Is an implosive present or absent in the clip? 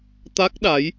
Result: present